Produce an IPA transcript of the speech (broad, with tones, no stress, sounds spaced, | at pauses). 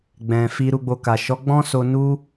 ɡ͡b ɛ̃˨ f i˧ ɾ u˧ ɡ͡b o˧ k a˨ ʃ ɔ˨˦ ɡ͡b ɔ̃˦ s o˧ n u˦